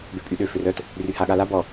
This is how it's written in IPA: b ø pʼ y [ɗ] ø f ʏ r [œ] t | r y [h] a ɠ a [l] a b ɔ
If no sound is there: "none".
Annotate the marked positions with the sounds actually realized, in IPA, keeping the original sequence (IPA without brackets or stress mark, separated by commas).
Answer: ɗ, œ, h, l